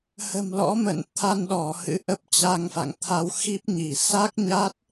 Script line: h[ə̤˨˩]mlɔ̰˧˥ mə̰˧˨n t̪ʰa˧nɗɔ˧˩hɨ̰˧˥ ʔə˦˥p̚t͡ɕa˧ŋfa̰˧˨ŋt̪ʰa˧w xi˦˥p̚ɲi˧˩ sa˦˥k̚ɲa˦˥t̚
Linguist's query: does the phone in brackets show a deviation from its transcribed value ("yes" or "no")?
no